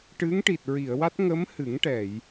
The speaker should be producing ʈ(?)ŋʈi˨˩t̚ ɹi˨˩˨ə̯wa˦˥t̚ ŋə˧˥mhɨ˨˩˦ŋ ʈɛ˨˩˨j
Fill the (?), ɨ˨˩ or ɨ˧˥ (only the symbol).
ɨ˧˥